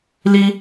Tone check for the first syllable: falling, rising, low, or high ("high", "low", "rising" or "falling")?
high